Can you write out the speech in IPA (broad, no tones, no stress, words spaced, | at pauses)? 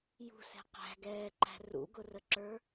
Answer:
jṳsɛ̤ qæ̤ɡɛːǃæ̤ rṵɡʊrəǁə˞